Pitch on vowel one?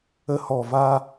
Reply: low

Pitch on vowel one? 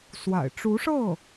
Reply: low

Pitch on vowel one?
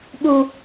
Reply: high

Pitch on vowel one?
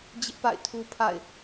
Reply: high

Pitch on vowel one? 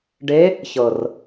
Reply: rising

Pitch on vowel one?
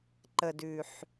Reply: low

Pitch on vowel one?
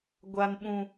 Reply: low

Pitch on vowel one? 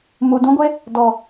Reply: low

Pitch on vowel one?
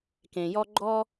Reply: low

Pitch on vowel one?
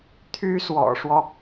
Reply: high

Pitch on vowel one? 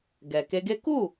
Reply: low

